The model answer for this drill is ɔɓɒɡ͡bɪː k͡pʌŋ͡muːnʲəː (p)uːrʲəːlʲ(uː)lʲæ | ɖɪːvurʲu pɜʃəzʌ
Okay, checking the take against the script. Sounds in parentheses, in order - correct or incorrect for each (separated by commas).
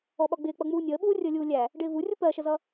incorrect, correct